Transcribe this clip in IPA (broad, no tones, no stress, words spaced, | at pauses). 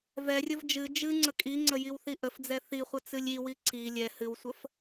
vɛrʲəv d͡ʒɨ d͡ʒɨ ŋ͡ǀəkʼiŋ͡ǀə jiwθiʔəfd͡zɛ θiχʷə t͡sɨlʲiwi ǀi lʲɛ hɨwsʷəf